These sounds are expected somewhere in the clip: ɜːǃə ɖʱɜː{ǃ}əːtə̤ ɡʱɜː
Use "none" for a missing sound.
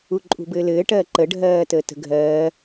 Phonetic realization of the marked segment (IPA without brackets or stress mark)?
t